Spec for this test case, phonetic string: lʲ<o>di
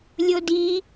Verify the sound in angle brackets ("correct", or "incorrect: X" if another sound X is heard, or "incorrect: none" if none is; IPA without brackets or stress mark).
correct